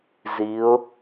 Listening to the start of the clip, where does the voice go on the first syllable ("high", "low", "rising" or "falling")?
rising